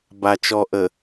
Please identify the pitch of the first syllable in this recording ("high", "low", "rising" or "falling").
low